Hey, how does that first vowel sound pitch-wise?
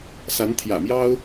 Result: rising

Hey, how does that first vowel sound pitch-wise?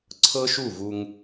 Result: high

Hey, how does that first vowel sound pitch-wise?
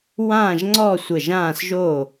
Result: falling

